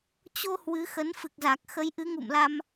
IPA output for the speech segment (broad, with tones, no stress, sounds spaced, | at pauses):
t͡ɕ o˧ h w ɨ˨˦ x ə˨˦ n f ɨ˨˩ k̚ z a˨˩ k̚ x ə˨˦ j ʔ ɨ˨˦ ŋ ṵ˧˨ m l a˧ m